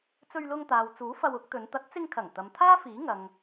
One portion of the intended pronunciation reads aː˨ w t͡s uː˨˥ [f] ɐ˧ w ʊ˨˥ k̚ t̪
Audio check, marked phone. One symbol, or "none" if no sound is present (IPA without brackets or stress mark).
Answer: f